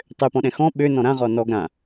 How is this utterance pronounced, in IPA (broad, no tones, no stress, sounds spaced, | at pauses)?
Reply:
tˤ ø p ɔ̃ ɗ ɛ̃ x ɔ̃ ɓ ø n ɔ̃ ɾ ã ʁ ɔ n ɔ ɡ ɾ ã